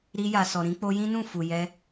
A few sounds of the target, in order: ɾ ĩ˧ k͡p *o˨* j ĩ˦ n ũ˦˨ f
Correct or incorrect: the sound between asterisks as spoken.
incorrect: o˧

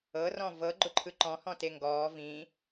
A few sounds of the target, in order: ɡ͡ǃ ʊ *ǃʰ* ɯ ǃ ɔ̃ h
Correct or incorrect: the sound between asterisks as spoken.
correct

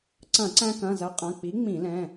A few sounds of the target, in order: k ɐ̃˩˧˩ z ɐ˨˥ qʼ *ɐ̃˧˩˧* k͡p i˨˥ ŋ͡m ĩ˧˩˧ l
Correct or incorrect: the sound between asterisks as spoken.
incorrect: ɐ̃˩˧˩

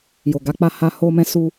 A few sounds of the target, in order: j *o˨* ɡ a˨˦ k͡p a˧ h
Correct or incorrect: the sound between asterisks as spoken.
correct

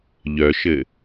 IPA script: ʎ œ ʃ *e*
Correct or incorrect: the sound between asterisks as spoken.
incorrect: ɘ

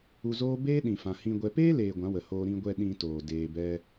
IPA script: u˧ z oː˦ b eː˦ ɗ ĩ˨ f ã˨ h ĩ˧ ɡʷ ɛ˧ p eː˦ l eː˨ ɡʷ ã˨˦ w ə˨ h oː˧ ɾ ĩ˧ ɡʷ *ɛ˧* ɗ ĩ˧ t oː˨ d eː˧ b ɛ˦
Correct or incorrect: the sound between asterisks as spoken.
correct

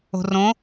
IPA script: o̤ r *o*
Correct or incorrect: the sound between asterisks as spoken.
incorrect: õ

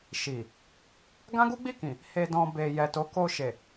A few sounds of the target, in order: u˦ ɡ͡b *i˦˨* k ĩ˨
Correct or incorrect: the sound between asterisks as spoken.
correct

